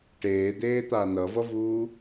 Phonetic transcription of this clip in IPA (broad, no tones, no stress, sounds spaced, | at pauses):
ʈ eː d̪ eː t̪ a n ʌ v ʌ v uː